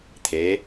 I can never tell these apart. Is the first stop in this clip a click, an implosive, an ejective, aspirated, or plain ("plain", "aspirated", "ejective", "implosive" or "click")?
aspirated